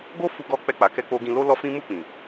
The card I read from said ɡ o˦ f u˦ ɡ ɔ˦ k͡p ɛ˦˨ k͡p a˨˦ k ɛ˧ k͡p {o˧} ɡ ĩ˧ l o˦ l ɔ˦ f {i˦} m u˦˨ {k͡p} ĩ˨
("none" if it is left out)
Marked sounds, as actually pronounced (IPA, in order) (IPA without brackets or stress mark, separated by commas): o˧, ĩ˦, k͡p